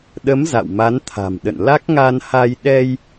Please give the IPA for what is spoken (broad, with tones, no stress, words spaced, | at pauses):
ɗə˨˦m za̰˧˨wma˨˦nt̪ʰa̤˨˩mɗə̰˧˨n la˦˥k̚ŋa˧n ha˧j ɗɛ˧j